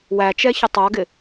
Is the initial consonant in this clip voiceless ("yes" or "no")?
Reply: no